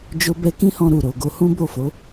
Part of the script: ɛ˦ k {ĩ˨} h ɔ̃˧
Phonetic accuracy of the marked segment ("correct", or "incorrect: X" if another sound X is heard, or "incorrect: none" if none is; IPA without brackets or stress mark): incorrect: ĩ˦